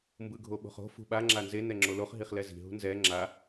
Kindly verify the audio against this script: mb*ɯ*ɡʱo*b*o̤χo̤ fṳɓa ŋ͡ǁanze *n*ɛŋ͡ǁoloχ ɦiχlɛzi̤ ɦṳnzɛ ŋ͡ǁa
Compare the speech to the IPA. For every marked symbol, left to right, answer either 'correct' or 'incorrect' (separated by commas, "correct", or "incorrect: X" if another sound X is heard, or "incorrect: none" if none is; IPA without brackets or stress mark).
correct, incorrect: ɓ, correct